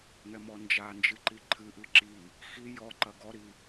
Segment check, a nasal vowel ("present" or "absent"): absent